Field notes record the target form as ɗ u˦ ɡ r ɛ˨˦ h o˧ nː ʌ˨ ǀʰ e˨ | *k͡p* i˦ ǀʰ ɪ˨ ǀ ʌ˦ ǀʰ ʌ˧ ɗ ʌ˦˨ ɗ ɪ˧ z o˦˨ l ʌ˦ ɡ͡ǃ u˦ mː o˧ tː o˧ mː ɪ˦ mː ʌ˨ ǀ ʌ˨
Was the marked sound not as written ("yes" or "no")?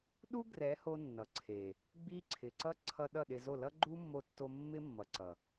yes